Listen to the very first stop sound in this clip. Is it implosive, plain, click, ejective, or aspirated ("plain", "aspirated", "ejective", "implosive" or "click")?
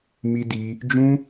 plain